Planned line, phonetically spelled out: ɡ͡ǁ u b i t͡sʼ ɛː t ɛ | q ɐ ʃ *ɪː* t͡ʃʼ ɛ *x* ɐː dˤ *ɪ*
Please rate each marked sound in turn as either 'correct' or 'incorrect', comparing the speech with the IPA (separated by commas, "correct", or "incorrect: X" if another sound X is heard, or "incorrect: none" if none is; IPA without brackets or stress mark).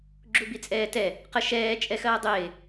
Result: incorrect: ɛː, correct, incorrect: ɪː